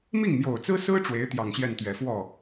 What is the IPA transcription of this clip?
mi˥˩ŋmjo˨˩ʊ̯t͡sɹ̩˥sɹ̩˥ ʈ͡ʂwe˧˥ɪ̯t̪jɑ˨˩ŋɕjɛ˥˩nt̪ɥɛ˨˩ fwɔ˥˩

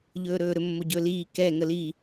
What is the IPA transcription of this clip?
ʎɵːɾɵːɾɵ mːoɟɵːliː kɛ ŋəli

